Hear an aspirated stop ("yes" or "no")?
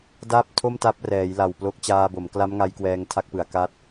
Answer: yes